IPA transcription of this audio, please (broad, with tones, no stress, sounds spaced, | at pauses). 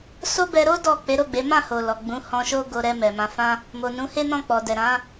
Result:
s o˦ b ɛ˧ ɾ o˦ d ɔ˦˨ k͡p e˨˦ ɾ o˦˨ ɡ͡b e˨˦ m ã˦˨ h o˨ l ɔ˨ ɡ͡b ũ˨˦ h ɔ̃˧ ʃ o˦ ɡ o˧ ɾ ɛ˧ m ɛ˨ m ã˨˦ f ã˦ | m o˨ n ũ˨˦ h e˦ n ɔ̃˦˨ k͡p ɔ˨ d ɛ˨ ɾ ã˨˦